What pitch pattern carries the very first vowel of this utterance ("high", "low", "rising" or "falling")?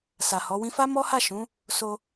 low